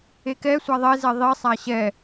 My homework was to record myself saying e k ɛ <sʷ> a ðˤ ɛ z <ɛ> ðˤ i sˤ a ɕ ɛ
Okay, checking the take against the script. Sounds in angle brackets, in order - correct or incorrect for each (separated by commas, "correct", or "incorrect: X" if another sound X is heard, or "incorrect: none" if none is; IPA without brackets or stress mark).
correct, correct